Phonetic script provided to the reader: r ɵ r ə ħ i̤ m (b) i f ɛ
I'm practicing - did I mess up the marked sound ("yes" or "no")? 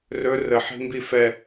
no